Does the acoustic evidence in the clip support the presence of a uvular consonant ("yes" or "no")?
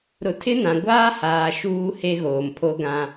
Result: no